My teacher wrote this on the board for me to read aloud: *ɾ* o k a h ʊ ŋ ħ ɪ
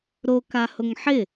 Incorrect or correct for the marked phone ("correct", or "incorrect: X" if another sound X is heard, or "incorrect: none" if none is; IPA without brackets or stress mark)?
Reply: correct